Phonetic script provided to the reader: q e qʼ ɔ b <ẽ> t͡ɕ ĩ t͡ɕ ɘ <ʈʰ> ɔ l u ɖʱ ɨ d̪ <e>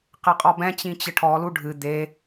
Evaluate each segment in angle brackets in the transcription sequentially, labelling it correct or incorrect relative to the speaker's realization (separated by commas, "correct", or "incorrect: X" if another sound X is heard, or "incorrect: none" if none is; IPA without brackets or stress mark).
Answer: incorrect: ɛ̃, correct, correct